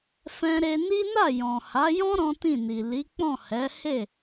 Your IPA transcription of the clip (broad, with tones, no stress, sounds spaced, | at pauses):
f ɛ̃˦ ɾ e˦ n i˦ n a˦˨ j ɔ̃˨ h a˨˦ j ɔ̃˦ ɾ ɔ̃˦ t ĩ˦˨ n i˨ l i˨˦ k͡p ɔ̃˦˨ h ɛ˨˦ h e˦˨